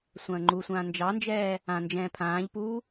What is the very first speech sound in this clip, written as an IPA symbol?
sʷ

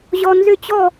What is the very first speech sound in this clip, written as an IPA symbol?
ʑ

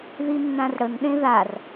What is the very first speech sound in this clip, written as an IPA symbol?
ð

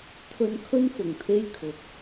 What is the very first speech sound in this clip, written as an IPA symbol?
t̪ʰ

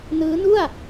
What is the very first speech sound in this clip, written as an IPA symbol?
n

